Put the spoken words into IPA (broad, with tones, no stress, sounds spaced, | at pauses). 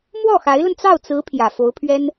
m w ɔ˥˩ x a˧˥ ɪ̯ l ə˧ n t͡s ɑ˥˩ ʊ̯ t͡s ɹ̩˧˥ pʰ j ä˨˩ f o˧˥ ʊ̯ pʰ ɥ ɛ˥ n